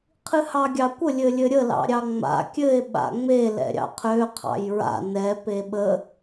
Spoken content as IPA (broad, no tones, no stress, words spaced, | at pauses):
qʰɨhɑɡʲɑkʷə lʲɘlʲɘɾʲə lɑ̰ɾʲɑŋ͡ma̰ kʲɘe̯ ɓa̰ŋ͡me lɛ̰ɾʲɑ̰qʰø qʰɑ̰jɹa̰ nɛ peɓə